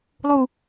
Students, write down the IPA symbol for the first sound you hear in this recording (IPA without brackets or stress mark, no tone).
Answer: lˠ